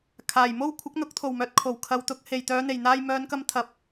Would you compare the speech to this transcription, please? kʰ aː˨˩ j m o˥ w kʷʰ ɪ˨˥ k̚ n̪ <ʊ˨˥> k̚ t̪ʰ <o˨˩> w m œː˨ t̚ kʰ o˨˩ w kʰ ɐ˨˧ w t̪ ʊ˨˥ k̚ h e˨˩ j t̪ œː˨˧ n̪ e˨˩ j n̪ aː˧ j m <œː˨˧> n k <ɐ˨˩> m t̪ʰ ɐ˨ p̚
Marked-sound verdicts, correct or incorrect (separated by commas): correct, correct, correct, incorrect